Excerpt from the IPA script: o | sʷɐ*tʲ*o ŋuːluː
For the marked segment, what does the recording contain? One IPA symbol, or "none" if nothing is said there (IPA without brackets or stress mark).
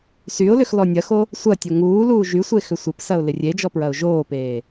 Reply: tʲ